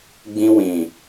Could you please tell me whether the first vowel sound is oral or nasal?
nasal